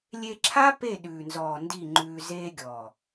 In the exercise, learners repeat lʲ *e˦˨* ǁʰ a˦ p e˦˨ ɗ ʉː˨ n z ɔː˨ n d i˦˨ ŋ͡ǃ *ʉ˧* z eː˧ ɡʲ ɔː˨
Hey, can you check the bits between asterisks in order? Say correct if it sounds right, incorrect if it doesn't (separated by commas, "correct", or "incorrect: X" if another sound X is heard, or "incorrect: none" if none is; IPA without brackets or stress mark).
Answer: incorrect: e˧, incorrect: ʉː˧